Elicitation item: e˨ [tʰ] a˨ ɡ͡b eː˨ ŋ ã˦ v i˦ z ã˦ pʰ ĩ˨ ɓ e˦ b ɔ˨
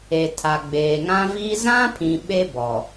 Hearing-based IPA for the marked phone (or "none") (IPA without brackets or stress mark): tʰ